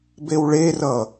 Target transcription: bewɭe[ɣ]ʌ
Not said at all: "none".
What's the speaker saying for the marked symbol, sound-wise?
r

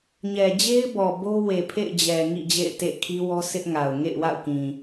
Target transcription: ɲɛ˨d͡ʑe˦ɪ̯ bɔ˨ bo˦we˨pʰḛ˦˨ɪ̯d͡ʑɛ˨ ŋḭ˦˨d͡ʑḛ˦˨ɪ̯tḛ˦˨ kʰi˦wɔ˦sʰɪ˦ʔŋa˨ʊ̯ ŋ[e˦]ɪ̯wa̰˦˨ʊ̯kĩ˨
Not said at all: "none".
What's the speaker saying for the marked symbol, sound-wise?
ḛ˦˨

